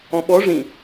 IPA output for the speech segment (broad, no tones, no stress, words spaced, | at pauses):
ɔ̃ɓɔ ʐĩ